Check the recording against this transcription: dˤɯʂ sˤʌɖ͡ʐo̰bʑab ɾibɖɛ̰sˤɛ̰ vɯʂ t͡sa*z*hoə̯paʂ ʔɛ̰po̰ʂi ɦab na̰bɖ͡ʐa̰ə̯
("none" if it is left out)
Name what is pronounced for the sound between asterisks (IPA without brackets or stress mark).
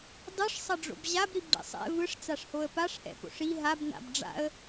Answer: ʂ